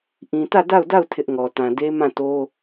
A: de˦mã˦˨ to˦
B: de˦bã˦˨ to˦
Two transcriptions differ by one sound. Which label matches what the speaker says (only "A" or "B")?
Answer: A